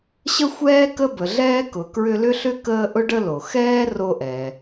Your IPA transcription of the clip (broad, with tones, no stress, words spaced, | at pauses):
ɕə˥xʷɛː˥ kə˥bə˨ɮɛː˥ kʊ˨kɹʏ˦lʏ˥ɬʏ˥ kəː˦ʔʊ˥ ɖə˦lo˩xɛː˥ ro˦ʔɛ˨